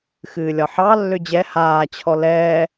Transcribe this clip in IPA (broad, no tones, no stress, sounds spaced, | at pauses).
x ɨː lʲ ɒ ħ ɑ lː ø d͡ʑ ɛ h aː t͡ɕʰ ɔ l ɛː